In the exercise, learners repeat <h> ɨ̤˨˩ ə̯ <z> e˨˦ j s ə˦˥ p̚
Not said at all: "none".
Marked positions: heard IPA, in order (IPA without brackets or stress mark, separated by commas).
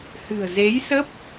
h, z